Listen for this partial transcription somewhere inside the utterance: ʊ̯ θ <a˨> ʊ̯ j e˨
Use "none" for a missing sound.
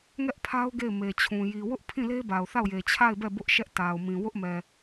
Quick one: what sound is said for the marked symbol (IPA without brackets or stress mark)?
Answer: a˦˨